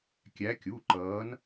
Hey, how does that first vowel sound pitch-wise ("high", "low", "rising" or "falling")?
rising